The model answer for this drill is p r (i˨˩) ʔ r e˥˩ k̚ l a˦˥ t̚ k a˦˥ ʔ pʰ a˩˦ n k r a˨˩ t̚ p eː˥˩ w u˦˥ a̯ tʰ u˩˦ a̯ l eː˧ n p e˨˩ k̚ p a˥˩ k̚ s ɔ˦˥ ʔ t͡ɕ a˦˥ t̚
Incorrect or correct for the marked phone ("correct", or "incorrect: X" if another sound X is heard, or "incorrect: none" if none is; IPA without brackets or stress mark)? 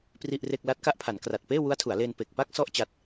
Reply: incorrect: i˥˩